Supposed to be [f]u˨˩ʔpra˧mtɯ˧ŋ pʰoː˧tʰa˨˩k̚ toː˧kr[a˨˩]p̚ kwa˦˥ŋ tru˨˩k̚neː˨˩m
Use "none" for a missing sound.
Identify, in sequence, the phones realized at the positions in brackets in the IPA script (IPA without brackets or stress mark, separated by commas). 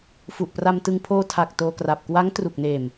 f, a˨˩